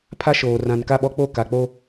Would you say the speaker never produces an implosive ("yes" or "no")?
no